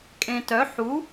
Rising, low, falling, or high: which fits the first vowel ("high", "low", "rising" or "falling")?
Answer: low